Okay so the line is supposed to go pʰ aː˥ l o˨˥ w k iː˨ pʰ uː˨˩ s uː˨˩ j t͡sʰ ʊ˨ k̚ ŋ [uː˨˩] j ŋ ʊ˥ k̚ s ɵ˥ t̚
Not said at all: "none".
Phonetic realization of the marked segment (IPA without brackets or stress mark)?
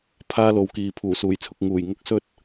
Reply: uː˨˩